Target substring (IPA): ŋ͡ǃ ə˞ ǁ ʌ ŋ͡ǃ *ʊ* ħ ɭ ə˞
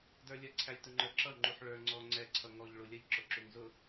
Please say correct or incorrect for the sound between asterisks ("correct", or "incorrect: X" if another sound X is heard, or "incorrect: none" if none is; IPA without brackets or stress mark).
incorrect: u